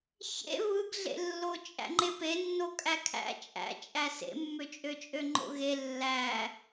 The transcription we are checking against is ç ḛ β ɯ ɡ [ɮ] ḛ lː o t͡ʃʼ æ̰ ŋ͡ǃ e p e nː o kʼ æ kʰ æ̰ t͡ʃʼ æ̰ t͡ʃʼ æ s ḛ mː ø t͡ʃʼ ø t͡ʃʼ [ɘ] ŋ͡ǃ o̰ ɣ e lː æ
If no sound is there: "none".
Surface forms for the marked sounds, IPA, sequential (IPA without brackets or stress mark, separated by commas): ɮ, ø